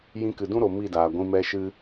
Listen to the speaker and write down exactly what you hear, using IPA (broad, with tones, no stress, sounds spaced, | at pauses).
j ĩ˧ k ɨ˨ d ũ˦ ɾ o˨ m i˦˨ d aː˨ ɡʷ ĩ˧ m ɛ˧ ʃ ɨ˧